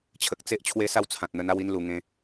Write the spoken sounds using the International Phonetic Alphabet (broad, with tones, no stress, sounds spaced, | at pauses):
t͡ɕʰ ə˨ k̚ t͡s e˦ ʔ t͡ɕʰ w e˦ s a˥˧ w t͡sʰ ã˨ t̚ n̪ ə˧ n a˥˧ w i˧ n l u˧ ŋ ẽ˦